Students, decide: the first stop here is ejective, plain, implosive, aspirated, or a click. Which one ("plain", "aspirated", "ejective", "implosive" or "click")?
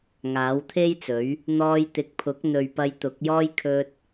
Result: aspirated